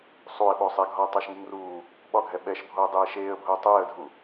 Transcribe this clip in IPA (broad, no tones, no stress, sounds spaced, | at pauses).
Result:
sˤ u ɪ̯ ɓ o sˤ ɛ ɡʱ ɒ ə̯ tˤ ɑ ʃ ŋ u ŋ r uː | ɓ ɒ ɡʱ ɛ ɓ ɛ ʃ bʱ o ə̯ dˤ eː ʃ eː ə̯ bʱ ʊː tˤ eː ə̯ dʱ u